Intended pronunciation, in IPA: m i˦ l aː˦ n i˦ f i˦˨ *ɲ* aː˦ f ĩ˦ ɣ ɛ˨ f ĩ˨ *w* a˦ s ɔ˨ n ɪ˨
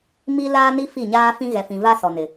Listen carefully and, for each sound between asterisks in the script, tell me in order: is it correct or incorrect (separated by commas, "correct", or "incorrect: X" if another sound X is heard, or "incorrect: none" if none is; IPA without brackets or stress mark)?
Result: correct, incorrect: v